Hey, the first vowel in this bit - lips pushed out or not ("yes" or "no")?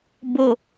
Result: yes